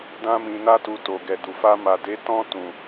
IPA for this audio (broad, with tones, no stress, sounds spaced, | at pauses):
d ã˧ m ĩ˨ n a˧ t u˨ t o˨ ɡ ɛ˨ d u˨ f a˧ m a˨ d e˨˦ t ɔ̃˧ t ũ˨